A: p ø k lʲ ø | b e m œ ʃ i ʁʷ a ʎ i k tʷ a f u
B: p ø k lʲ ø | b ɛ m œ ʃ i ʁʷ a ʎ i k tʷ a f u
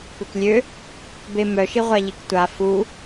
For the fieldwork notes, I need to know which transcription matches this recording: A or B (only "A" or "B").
A